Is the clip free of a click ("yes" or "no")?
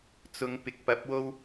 yes